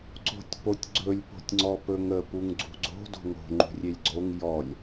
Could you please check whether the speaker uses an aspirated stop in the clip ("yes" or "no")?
no